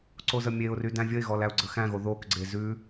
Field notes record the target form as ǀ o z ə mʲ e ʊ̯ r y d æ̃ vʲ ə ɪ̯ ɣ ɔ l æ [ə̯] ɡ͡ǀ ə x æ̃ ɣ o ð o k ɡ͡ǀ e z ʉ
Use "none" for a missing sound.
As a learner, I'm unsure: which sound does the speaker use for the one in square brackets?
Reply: ʊ̯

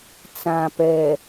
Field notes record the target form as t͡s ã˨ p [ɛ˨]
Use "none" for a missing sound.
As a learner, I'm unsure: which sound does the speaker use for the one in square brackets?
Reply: ɛ˨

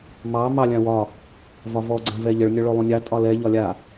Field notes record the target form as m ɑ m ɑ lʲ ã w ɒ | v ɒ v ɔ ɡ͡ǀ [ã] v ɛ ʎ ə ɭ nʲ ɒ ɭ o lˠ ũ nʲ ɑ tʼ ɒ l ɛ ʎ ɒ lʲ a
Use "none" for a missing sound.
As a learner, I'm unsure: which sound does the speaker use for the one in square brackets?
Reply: ã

